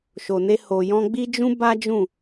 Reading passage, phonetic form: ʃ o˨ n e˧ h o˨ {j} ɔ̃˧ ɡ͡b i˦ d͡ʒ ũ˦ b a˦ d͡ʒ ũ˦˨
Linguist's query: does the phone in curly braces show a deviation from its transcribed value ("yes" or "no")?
no